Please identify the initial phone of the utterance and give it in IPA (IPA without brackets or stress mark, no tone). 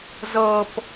z